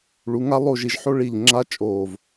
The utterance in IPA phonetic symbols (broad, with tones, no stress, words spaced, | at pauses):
ɭu˩˧ŋa˥ lˠo˥˧ʒi˧ʒ ħo˥ɭi˧˩ʎ ŋ͡ǁa˥t͡ʃʼo˧˩v